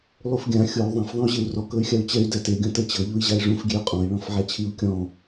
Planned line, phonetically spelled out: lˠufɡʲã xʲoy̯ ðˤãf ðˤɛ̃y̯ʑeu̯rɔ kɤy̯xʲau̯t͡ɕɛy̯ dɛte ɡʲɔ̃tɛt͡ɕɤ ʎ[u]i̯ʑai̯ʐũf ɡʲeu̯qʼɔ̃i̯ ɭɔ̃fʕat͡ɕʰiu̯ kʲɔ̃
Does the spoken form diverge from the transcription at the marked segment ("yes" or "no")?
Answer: no